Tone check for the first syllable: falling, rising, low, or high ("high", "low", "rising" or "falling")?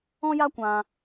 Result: high